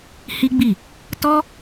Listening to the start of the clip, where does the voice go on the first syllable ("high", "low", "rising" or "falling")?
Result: high